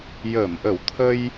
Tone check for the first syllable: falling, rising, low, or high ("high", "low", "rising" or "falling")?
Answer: low